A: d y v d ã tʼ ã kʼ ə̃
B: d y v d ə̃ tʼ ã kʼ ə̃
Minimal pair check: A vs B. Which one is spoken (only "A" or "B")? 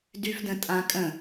B